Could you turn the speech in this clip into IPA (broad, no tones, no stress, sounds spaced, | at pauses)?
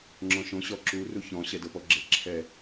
ŋ͡ǁ ɔ̃ ʃ õ ɕ ɔ ǁ u r u ç ɔ̃ ɕ ɛ d ɤ p ɔ ɡ͡ǁ e ǁʰ ɛ